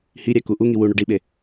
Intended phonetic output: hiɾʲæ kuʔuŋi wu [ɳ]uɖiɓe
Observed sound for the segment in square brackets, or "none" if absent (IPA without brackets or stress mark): ɳ